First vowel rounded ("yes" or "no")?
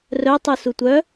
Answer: yes